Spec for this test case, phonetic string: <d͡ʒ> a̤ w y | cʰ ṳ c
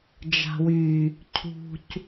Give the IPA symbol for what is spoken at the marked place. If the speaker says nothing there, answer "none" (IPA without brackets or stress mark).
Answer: d͡ʒ